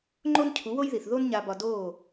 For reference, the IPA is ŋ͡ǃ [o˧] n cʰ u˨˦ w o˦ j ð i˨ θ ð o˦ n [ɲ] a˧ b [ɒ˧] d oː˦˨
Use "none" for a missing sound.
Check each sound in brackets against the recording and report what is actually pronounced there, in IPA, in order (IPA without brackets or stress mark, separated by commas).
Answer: o˦, ɲ, ɒ˧